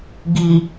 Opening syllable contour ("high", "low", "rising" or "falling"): low